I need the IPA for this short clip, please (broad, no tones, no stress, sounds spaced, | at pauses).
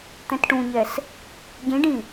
t̪ ɛ̃ t ʈ ũ ɲ ɛ s | ɟ ĩ ɖ ĩ